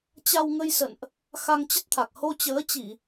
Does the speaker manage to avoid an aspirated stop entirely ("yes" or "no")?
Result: no